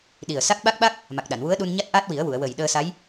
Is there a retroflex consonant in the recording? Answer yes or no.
no